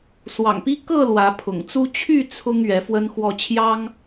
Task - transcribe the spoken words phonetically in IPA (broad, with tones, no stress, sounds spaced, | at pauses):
s w ɑ̰˨˩ ŋ p i˦ k ɤ˥˨ l w ä˨˦ pʰ ʊ̰˨˩ ŋ t͡s u˦ t͡ɕʰ y˥˨ t͡sʰ ʊ˦ ŋ ɥ ɛ˨˦ f w ə˦ n x w ɔ˥˨ t͡ɕʰ j ɑ˦ ŋ